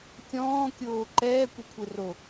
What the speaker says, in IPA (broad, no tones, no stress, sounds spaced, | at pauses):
kʲ ɔ̃ː kʲ oː ǃ ɛː kʷ e kʷʰ e r o